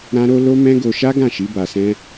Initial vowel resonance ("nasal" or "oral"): nasal